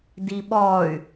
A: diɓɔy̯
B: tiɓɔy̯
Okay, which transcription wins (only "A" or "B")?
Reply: A